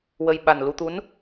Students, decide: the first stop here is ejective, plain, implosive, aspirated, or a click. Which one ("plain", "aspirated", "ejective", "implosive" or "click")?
implosive